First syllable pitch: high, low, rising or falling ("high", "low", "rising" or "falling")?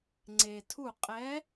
low